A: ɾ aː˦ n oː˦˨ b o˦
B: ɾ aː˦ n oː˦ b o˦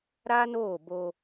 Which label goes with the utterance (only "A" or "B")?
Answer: A